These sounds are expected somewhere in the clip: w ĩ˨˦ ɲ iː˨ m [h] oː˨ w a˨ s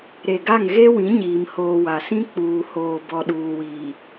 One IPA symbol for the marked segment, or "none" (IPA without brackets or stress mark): h